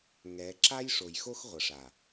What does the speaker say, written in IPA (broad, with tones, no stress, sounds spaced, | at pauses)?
ŋ ɛ˨˦ ǁ a˦ j ʂ o˨ j x o˦ x ʁʷ ʌ˨ ʂ a˨